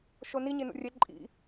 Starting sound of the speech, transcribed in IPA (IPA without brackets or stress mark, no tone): ʃ